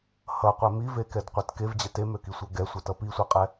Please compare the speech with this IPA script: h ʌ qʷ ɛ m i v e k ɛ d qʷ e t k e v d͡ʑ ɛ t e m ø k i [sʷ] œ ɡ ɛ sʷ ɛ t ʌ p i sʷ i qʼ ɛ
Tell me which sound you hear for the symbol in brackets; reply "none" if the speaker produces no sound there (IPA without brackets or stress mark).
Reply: sʷ